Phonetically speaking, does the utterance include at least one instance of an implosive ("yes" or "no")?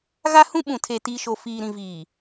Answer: yes